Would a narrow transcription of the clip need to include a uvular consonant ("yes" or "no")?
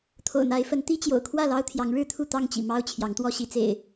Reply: no